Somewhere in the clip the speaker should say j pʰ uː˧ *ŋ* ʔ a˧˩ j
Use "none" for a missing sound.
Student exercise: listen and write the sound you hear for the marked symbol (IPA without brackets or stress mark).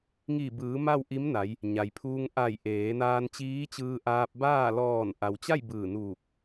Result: ŋ